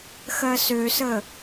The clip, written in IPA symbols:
xɜsøsə

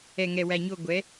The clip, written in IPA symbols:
ɛ˨˩ŋɛ˨˩wæ˨˩ɲo˦˨ ɡʷɛ˩˧

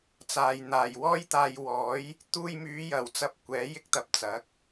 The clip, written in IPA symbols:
t͡saː˨j n̪aː˨˩jwɔː˥jt̪aː˧j wɔː˨˥j | t̪uː˧jmyː˨˧jɐ˨˩wt͡sɐ˨˥p̚ kʷɛː˨˥jɪ˥k̚t̪ɐ˧p̚ t͡sɐ˨˥k̚

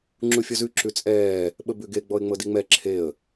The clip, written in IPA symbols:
ŋ͡ǁufʲɔzʉ ǁʉt͡sʼɛː | ɓəbʉɡe ɡ͡bɔɪ̯ŋ͡mɤdiŋ͡mɛ ǁʰeə̯

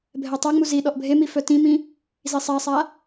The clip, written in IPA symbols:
bʱɛtˤaŋ͡mu zi ɗɔʔbʱemi fœtĩmĩ | zisˤasˤa

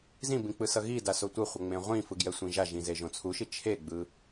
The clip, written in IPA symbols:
zĩbĩ k͡pɯsʌɣida sotʷɯχʷʌ ŋ͡mẽʁʷĩfɯ ɡjɛsʷĩʒaʒĩ zeʒõt͡sʰuʃi t͡ʃʰeɡ͡bɯ

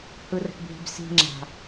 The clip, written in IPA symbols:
hɯrə̤ʈbʱi̤bsi̤ ŋ͡ǁa̤

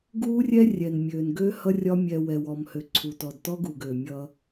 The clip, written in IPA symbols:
ɡuː˦rʲɛ˦ rʲɛ˨nmʲøː˨nɡø˦ hʌ˦rʲɒ˦ mʲɛ˨ wɛ˨wɔ˨mhø˨ ǀʰu˨tɔ˨dtɔ˦ɡu˨ɡ ø˨mʲʌː˦

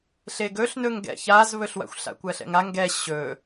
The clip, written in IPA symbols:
ɬeɡɵɬnɵŋ ɡɛ̰çazβɵɬwa̰xʷ ɬa̰kʷɜɬɛ̰ŋa ŋɡɛ ɕɵ

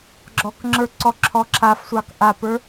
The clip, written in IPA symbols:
ɡ͡ǁɔkŋ͡ǁə˞ ǀɔǁʰɔǁʰafsʷɑk ʔapə˞

